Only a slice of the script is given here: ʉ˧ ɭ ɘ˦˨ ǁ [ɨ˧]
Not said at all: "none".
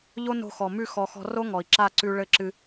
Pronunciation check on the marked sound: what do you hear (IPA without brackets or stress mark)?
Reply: ɨ˧